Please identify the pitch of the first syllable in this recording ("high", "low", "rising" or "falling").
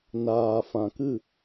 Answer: low